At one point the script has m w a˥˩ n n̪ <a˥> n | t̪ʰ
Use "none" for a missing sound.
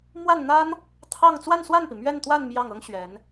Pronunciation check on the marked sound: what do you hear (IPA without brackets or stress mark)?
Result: a˥